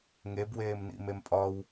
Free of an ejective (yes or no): no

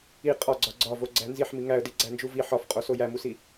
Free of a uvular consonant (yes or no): no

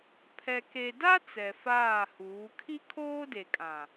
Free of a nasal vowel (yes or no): no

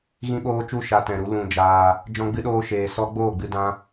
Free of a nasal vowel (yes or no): no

